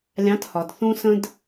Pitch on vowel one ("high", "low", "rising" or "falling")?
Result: rising